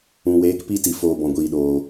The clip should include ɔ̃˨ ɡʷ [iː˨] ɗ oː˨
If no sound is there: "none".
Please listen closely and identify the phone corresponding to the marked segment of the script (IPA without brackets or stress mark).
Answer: iː˨